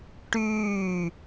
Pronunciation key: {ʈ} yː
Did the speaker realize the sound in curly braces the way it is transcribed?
yes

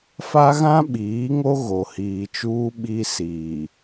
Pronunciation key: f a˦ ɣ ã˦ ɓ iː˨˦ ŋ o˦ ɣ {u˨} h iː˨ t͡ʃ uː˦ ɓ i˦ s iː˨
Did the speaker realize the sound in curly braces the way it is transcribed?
no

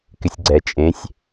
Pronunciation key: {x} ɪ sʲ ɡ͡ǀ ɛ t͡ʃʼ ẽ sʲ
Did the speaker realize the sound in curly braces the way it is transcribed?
no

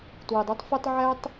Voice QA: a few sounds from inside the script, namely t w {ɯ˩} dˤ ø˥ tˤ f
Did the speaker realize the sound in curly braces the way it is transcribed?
yes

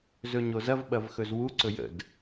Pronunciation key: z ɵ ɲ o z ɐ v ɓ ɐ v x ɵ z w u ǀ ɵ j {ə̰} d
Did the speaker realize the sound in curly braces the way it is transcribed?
yes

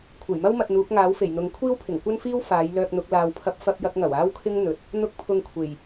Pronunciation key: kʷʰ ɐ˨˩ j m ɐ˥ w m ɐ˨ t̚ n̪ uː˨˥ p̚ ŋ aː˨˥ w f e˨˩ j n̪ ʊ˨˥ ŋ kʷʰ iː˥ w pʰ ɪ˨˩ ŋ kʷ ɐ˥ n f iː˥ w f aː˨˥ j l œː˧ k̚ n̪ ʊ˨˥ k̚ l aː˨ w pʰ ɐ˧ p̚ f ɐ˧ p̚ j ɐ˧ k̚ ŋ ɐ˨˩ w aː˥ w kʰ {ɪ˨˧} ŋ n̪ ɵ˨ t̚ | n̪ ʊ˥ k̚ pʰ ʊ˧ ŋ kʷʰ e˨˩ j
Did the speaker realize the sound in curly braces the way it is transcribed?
no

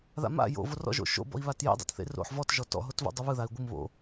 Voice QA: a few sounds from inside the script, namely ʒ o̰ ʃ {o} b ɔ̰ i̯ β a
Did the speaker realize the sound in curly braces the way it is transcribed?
no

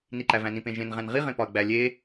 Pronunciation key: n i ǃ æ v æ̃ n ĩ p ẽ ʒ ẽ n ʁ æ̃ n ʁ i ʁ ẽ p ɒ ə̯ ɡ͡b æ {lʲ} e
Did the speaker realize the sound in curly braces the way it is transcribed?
yes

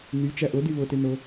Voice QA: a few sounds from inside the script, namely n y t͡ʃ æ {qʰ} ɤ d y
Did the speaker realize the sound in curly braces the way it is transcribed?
no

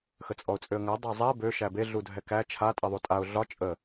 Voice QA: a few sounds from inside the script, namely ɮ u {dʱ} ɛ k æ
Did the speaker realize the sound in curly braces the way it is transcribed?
yes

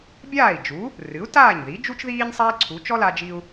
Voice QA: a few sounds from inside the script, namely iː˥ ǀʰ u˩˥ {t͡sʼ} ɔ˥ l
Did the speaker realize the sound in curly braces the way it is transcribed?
no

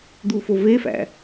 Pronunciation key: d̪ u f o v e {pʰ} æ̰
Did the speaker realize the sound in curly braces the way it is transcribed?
no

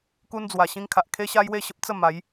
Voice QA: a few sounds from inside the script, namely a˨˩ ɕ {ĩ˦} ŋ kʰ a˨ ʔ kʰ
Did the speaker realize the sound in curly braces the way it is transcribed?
yes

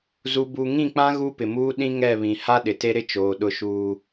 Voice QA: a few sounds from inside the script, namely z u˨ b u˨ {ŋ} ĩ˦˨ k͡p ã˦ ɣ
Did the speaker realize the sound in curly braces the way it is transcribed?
yes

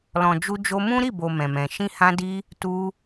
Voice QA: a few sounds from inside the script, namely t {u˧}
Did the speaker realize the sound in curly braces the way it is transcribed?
yes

